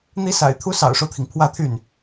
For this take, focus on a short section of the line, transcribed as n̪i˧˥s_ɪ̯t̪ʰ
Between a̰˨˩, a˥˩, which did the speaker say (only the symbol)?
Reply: a̰˨˩